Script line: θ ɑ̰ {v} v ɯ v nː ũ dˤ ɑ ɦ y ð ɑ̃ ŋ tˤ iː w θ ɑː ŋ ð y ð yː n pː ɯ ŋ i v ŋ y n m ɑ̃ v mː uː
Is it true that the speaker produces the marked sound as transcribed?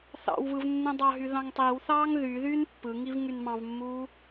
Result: no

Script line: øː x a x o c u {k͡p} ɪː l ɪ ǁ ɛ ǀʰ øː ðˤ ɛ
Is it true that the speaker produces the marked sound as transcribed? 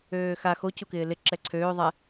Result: no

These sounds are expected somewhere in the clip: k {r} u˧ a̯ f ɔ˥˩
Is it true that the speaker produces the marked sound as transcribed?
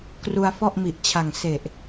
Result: yes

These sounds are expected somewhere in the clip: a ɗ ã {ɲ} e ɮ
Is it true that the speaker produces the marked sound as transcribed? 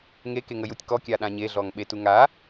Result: yes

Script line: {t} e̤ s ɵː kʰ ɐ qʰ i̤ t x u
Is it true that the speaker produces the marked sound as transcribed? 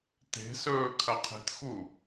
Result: yes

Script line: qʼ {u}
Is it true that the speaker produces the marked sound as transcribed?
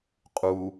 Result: yes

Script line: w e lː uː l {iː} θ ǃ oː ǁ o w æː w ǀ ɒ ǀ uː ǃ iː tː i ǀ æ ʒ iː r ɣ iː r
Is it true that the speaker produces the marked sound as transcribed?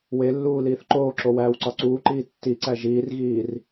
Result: yes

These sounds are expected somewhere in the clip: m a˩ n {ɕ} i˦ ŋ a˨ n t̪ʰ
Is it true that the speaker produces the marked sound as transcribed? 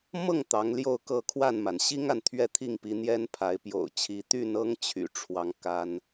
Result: yes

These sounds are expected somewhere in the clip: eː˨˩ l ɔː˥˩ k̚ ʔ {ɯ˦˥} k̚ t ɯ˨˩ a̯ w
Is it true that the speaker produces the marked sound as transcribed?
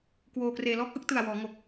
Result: yes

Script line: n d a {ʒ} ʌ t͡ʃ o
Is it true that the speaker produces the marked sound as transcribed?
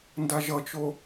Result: yes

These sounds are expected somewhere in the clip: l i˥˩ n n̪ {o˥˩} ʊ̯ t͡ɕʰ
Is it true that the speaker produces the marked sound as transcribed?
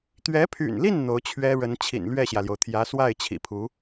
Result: no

